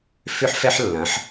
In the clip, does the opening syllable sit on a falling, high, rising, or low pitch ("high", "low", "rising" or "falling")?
high